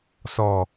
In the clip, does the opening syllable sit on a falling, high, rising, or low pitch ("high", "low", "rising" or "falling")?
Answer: low